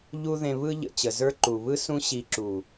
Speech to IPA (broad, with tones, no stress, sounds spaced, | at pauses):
ʎ u˧ ð ẽ˨ β ɯ˧ ʎ ə̰˨ t͡ɕ ə˨ z ə˞˦ ǃ u˨ β ɯ˦ s ũ˦ ɕ i˧ ǁ u˨